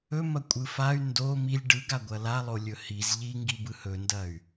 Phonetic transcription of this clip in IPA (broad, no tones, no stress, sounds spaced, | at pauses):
ɵ m ɐ kʷʼ ɯ f a y̯ n d o m i lʲ ɖ ɯ ɡ a ɡʷ ɐ l a lˠ o lʲ ɵ h i z ʎ i ŋ ɡ i b ɯ h ɵ n d ɐ y̯